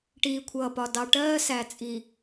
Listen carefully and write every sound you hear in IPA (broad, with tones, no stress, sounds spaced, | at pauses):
ʈ iː˨ kʷʰ ʌː˨ p ɒ˨ d ɑ˨ ʈ ɜː˦ s æ˨ t͡sʼ i˨